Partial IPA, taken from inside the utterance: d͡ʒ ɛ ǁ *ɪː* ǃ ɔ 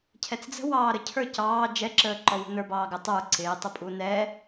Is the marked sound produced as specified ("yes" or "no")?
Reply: no